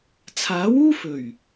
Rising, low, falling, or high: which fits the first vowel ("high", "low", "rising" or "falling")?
rising